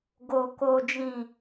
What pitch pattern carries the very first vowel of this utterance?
low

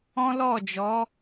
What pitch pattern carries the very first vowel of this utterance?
high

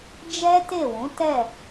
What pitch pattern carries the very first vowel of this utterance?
high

